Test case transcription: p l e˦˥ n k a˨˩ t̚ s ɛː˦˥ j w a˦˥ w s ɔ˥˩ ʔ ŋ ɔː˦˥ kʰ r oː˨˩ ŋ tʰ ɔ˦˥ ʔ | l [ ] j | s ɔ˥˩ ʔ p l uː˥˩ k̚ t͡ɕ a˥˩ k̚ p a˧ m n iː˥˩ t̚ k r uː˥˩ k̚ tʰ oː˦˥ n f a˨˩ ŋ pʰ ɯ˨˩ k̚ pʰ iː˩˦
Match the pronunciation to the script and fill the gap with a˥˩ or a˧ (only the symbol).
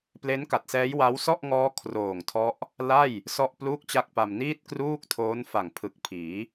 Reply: a˥˩